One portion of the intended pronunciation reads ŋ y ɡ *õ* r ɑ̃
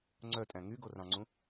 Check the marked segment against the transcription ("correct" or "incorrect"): incorrect